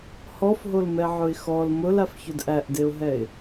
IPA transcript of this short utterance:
h ɔ f ɦ o l m ɛ ʕ ʊ ɪ̯ x ɔ l m ʊ l a f ç ʊ d ʔ æ ʔ d e ʊ̯ ɦ ɛ ɪ̯

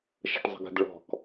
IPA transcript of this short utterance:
ʃ ə̤ ʈ zˤ ə̤ ɡ ə̤ d ɭ ɔ̤ k

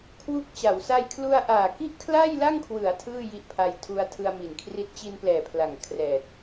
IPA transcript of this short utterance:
kʰ w u˦˥ k̚ t͡ɕ a˩˦ w s a˧ j kʰ l u˧ a̯ ʔ aː˨˩ k i˥˩ ʔ kʰ l a˥˩ j l a˥˩ ŋ kʰ w ɯ˩˦ a̯ tʰ ɯː˥˩ j i˦˥ ʔ pʰ a˧ j tʰ u˧ a̯ tʰ ɯ˧ a̯ m i˨˩ n kʰ r i˦˥ t̚ t͡ɕ i˧ n p l ɛː˨˩ pʰ l a˨˩ ŋ kʰ r ɛː˨˩ t̚

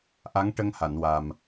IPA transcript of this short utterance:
ʔ a˧˥ ŋ ʈ ə˧ ŋ h a˨˩˨ n w a˨˩ m

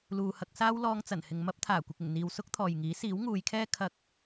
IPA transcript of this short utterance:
l uː˨ h ɐ˧ k̚ s aː˥ w l ɔː˧ ŋ t͡s ɐ˨˩ n h ɪ˨ ŋ m ɐ˥ p̚ t̪ʰ aː˨˩ kʷ ɪ˨ k̚ ɪ˨˩ ŋ n̪ iː˨ w s ʊ˥ k̚ t̪ʰ ɔː˨ j ŋ iː˨˥ s iː˨˥ w ŋ uː˨˧ j kʰ ɛː˥ kʰ ɐ˧ k̚

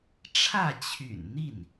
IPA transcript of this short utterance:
ʈ͡ʂʰ ä˥˩ t͡ɕʰ y̰˨˩ n n̪ i˥˩ n

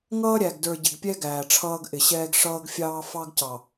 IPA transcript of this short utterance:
ŋ ʌː˦ ɾʲ æ˨ ɡ d ə˞˨ ɟ ɪ˨ ɡ pʲ ɛ˦ ɡ æː˨ ʈ͡ʂʰ ʌː˦ ɡ ʔ ɪ˨ ɕ ɛː˦ ɡ ʂ ʌː˦ ɡ fʲ ɑː˦ f ɑ˦ ɡ c ɑ˨

